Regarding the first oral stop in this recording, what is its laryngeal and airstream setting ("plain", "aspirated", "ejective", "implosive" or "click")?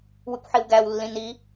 plain